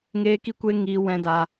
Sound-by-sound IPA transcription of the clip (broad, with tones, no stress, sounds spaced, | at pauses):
ŋ eː˦ k i˦ kʷ e˦ ŋ i˧ w ɛ̃˧ d aː˧